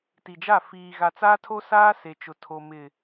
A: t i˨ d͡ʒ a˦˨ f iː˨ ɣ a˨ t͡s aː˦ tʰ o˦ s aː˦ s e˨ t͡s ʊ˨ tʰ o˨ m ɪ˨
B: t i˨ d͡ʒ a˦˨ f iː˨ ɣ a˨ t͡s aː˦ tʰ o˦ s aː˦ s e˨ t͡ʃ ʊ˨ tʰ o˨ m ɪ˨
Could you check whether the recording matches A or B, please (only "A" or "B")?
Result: B